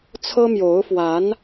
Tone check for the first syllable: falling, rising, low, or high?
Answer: high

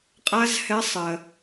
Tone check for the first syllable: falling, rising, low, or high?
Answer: high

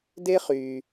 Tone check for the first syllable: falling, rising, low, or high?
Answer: high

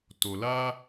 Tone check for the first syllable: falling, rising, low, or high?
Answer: low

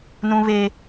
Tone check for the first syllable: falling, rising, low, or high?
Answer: high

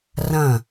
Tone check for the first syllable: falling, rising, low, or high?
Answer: falling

